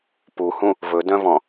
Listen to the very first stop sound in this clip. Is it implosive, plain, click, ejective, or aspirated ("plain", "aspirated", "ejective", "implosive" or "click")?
plain